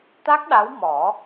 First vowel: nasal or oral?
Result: oral